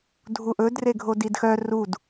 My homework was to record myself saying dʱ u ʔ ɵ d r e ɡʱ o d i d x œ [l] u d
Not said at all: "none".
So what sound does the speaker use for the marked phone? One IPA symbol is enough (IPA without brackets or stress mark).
r